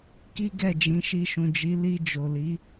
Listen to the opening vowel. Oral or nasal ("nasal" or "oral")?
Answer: oral